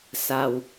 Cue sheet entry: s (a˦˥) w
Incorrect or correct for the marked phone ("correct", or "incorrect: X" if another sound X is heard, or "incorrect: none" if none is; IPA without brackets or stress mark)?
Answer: incorrect: a˧